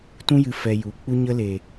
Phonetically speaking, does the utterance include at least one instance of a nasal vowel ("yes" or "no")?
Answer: yes